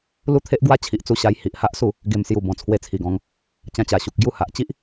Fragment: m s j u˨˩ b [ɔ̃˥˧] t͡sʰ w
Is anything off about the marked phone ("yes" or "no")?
yes